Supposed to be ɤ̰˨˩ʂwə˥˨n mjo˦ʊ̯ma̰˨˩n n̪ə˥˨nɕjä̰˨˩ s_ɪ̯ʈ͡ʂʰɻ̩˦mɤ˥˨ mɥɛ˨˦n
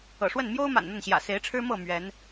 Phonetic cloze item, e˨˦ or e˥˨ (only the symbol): e˨˦